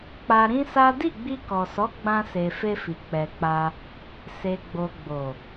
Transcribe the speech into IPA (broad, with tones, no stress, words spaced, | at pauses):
k͡pa˧ɾĩ˦sa˦ di˦˨ɡ͡bi˧kɔ˨sɔ˨˦ ɡ͡bã˧se˨ fe˧fi˨ k͡pɛ˨k͡pa˧ | se˨ɡ͡bo˨ɡ͡bo˨